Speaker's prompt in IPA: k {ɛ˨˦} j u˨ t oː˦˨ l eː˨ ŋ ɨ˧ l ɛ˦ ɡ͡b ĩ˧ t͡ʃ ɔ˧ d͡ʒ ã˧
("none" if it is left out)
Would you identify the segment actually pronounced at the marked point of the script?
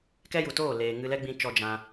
ɛ˦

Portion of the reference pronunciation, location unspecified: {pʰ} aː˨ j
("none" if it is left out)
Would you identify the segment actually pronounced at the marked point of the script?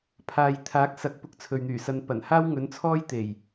pʰ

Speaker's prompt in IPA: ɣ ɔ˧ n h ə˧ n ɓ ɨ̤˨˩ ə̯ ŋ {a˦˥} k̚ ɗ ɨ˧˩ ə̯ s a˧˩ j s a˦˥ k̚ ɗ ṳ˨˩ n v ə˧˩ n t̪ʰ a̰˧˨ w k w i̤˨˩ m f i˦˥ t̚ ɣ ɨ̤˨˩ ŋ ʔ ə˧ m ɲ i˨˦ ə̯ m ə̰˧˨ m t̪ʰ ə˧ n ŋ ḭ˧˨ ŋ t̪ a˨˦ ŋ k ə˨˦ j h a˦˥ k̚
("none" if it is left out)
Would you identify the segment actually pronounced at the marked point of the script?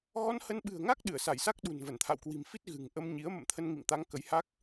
a˦˥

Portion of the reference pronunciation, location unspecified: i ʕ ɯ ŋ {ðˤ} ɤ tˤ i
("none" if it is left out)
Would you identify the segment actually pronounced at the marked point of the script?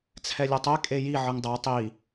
dˤ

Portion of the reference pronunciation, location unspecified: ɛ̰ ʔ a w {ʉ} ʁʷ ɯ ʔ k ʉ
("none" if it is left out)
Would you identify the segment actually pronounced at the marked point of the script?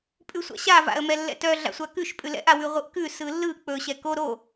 ʉ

